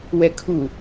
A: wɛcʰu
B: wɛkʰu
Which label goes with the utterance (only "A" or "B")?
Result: B